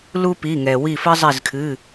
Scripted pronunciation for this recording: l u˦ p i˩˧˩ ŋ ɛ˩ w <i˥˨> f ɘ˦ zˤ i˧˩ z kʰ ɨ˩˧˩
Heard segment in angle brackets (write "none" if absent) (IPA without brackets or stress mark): i˧˩